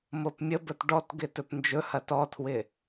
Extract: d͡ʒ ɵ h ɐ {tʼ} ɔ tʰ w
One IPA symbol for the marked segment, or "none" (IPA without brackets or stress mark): t